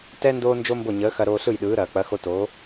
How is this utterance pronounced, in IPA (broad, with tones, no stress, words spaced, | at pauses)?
tɛ˥ ndoː˥nd͡ʒo˥mbo˥˩ ɲəː˩˥xɐ˧ ɾoː˧ɬɯ˥˩jɗɯː˩˥ɾɐː˩ k͡pɐ˩˥xo˧toː˩˥